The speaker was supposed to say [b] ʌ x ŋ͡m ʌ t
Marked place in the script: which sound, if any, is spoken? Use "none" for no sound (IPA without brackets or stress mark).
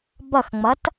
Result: b